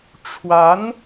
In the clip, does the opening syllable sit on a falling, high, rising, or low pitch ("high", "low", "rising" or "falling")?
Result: rising